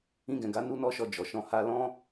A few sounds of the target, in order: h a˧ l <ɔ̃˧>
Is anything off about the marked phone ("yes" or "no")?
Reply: yes